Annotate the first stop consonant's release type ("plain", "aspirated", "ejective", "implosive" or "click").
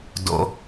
plain